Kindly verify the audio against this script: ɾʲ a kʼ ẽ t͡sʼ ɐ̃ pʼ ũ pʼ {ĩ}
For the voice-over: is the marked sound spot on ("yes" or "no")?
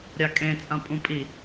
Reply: no